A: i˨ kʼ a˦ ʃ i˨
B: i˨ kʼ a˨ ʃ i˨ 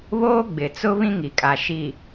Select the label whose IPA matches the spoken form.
B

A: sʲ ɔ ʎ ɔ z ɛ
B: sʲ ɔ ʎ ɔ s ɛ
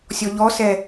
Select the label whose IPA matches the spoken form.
B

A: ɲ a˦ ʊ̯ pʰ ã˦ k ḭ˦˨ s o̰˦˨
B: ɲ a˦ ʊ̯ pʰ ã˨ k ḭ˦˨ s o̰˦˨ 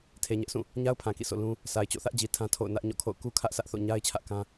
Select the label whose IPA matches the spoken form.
B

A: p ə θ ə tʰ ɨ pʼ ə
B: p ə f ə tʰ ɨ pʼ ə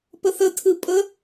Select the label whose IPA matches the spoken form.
A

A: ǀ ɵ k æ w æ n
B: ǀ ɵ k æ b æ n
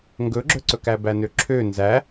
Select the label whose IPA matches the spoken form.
B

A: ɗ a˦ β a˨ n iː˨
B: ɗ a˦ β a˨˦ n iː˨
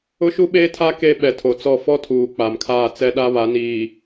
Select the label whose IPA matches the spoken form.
B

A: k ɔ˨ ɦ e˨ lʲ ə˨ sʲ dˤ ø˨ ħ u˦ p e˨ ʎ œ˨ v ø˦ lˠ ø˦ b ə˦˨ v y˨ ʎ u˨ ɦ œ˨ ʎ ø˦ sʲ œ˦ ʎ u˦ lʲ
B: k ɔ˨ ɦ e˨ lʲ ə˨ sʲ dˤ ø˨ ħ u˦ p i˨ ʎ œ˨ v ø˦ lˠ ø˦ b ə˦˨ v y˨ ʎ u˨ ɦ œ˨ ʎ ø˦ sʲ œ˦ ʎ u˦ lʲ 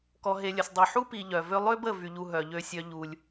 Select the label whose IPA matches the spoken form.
B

